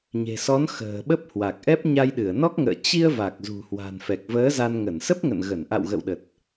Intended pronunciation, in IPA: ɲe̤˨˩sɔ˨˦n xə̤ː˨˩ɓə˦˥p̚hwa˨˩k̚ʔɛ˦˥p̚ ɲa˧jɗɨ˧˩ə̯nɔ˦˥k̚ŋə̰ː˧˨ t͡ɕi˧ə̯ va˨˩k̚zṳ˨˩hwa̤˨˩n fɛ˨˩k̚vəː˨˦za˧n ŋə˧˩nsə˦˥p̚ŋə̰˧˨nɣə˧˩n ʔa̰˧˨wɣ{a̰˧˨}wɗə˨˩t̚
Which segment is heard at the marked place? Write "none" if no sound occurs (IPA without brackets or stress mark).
ə̰˧˨